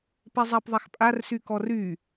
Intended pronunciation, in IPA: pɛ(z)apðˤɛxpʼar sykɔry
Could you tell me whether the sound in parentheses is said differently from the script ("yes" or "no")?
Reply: yes